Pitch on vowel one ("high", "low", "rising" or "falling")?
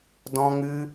high